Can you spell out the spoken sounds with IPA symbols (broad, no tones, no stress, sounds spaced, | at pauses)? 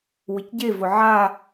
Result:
w ɪ c ɟ e v ʊ ʕ a